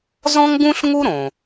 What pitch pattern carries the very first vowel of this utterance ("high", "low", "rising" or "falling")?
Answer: high